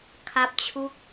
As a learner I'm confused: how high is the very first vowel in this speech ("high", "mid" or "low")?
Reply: low